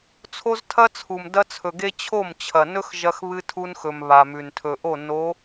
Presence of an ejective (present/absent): absent